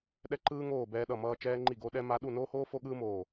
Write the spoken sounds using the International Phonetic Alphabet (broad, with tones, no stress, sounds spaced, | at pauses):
ɗ ɛ˥ ǃ ɯː˥ ŋ oː˥˧ b ɛː˥ ɗ ʌ˥˧ m ʌː˥ t͡ʃ ɛː˥ ŋ͡ǃ i˥˧ ɡ o˥ ɗ ɛ˥ m a˥ ɗ u˥˧ n oː˥ h oː˥ f o˥ ɠ ɯː˥ m oː˥˧